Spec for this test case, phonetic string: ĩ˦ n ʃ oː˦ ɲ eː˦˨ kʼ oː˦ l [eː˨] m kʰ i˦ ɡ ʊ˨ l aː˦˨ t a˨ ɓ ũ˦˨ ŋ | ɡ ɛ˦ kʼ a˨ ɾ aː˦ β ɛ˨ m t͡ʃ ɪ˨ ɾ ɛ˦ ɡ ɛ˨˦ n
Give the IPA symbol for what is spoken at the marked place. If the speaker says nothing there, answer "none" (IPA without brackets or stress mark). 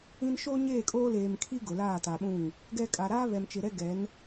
eː˨